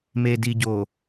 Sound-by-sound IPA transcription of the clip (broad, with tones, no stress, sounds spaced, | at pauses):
m eː˨ d i˨ ɟ o˨